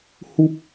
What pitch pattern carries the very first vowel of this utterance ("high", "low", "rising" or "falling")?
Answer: high